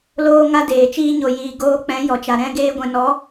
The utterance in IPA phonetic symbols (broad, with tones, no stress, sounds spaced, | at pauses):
l oː˦ ŋ a˦ d eː˨ t͡ʃ iː˧ ɲ o˨ j iː˨ ɡ oː˧ k͡p ɛ̃˨˦ j ɔ˨ t͡ʃ a˨ ɾ ɛ̃˦ ɡ eː˦ ɡʷ ɛ̃˧ n ɔ˨˦